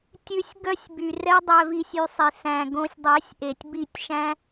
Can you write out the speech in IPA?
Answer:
tʲ ʉ˨˦ sʲ ɡ œ˦ sʲ b y˨ r ɛ˦ dˤ œ˧ v i˧ sʲ y˧ sˤ i˨ s æ̃˧ ɡ õ˧ sʲ dˤ ɛ˨˦ sʲ ʔ e˨ tʲ b i˦˨ tʲ ʃ æ̃˦

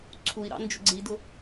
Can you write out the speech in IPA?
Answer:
ǀʰ u i̯ ɾ ɑ̰ n d͡ʒ ʊ ɡ͡ǀ i d ʊ

